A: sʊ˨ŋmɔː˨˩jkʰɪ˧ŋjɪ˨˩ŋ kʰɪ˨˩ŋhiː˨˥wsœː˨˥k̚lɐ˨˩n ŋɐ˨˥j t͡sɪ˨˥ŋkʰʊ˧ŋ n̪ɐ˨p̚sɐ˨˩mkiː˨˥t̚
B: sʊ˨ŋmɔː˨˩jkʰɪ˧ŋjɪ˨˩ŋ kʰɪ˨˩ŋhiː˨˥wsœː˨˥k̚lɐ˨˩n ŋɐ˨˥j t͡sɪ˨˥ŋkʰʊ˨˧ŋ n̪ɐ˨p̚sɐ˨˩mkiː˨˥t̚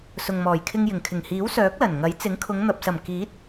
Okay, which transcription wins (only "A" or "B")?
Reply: B